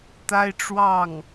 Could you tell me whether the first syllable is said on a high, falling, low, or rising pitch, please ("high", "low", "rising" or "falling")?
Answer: high